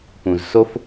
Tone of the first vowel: low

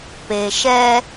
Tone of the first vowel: low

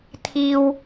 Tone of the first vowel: high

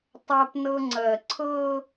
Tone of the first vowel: high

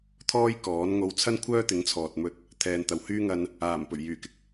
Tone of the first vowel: high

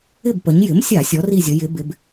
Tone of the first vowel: falling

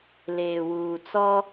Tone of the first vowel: low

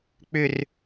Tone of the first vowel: falling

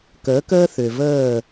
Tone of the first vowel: rising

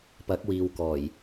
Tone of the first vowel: rising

